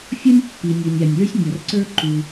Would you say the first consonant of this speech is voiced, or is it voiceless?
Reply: voiceless